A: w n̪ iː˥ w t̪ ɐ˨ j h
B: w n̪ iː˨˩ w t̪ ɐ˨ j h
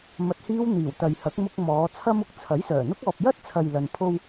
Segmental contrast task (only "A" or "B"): B